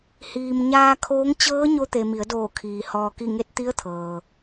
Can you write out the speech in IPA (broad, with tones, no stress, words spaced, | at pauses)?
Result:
hiː˩m ɲaː˧kʰoː˧˥ŋ t͡ɕɤː˧˥ɲo˧t̪e˩ mi˩˧ə̯doː˧˩kʰiː˩ hɔː˩ki˧˩ŋe˧t̚ t̪i˧˥ə̯t̪ʰɤː˩